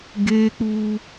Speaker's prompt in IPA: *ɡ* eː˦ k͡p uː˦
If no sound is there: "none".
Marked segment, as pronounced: ɡ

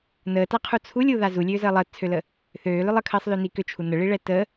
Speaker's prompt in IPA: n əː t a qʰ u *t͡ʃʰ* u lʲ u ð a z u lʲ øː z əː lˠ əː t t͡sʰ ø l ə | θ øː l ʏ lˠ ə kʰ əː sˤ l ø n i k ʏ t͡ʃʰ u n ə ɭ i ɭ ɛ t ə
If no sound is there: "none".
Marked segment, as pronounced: t͡sʰ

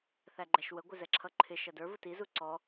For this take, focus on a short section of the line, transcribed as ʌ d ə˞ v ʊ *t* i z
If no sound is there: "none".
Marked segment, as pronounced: t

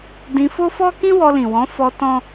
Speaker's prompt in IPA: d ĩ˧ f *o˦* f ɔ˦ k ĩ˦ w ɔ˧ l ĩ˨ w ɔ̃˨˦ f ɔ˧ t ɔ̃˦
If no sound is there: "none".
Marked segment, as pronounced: o˦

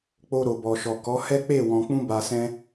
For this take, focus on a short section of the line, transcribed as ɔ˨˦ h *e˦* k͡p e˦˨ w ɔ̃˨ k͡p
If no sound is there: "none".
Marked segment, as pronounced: ɛ˦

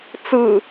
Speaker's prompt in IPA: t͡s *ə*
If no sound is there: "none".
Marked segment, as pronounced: ɯ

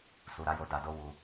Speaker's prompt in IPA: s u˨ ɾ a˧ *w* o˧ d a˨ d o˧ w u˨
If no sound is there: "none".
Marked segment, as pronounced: j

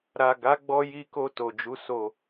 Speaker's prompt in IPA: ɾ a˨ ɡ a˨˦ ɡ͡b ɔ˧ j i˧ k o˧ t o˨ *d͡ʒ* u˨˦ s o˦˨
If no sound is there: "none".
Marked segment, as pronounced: d͡ʒ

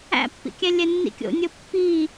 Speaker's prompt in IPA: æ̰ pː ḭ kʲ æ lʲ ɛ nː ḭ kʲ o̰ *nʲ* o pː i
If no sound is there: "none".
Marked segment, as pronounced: nʲ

